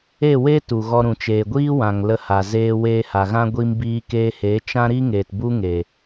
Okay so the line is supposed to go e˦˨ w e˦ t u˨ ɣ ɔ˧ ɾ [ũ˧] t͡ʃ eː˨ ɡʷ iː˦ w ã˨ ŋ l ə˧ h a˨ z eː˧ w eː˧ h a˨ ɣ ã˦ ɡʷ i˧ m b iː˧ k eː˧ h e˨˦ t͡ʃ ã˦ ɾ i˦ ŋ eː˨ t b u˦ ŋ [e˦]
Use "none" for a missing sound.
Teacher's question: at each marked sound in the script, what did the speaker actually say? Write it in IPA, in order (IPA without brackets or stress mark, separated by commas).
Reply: ũ˨, e˨